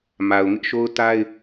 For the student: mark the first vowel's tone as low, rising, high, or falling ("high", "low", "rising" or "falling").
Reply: low